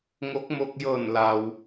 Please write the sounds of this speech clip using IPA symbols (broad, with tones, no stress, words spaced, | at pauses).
ŋo˧˥k̚mo˧k̚ jɤː˧˩nla˩w